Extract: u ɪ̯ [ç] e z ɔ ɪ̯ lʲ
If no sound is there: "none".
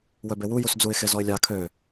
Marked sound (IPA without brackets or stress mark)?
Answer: x